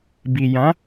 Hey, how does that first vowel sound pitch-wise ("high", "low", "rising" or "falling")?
low